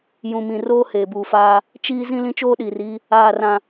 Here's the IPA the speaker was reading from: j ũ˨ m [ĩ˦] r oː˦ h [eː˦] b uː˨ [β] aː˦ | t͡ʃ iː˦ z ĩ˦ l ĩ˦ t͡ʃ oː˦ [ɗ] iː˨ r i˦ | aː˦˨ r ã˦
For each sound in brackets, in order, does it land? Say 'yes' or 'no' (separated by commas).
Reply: no, no, no, yes